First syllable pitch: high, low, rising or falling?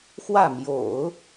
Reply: falling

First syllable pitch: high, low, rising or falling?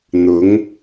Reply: rising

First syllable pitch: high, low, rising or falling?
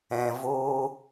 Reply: low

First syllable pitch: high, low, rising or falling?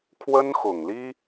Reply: high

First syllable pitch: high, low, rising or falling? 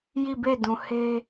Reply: falling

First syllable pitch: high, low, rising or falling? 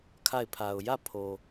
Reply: falling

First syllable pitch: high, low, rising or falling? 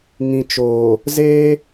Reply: low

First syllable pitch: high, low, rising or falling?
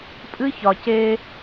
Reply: high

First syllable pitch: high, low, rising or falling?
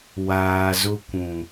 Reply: low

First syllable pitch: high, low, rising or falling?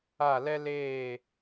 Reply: falling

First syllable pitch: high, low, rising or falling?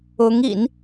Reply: rising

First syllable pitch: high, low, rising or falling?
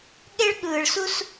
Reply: high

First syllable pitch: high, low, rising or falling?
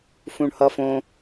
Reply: high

